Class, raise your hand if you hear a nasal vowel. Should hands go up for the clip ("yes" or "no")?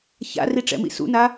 no